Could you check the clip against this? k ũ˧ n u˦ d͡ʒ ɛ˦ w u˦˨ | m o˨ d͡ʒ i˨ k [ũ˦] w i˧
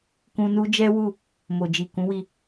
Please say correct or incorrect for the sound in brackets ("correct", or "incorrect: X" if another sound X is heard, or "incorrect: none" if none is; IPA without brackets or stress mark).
incorrect: ũ˨˦